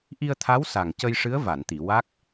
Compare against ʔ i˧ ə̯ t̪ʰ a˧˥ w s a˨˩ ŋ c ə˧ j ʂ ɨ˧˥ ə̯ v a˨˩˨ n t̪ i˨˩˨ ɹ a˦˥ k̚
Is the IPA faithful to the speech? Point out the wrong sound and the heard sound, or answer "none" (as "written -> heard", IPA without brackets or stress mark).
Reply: ɹ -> w